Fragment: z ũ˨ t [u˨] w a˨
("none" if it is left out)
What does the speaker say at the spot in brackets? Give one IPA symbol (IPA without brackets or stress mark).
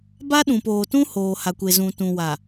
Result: ũ˨